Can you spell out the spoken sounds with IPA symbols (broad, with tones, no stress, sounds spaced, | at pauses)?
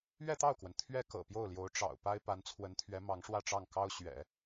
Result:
ɥ ɛ˥˧ t̪ ɑ˥˩ ʊ̯ k w ə˩ n t̪ʰ ɥ ɛ˥ k ɤ̰˨˩ p j o˥˩ ʊ̯ l j o˧˥ ʊ̯ ʈ͡ʂ ɑ̰˨˩ ʊ̯ p a˥ ɪ̯ p a˧˥ n t͡sʰ w ə˧˥ n t̪ʰ ɥ ɛ˧˥ m ɑ˧˥ ŋ ʂ w ä˥˧ ʈ͡ʂ ɑ˥˩ ŋ k ɑ˥ ʊ̯ ɕ ɥ ɛ̰˨˩˦